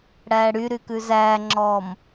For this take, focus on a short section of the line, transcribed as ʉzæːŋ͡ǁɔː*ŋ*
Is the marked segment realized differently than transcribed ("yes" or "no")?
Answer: yes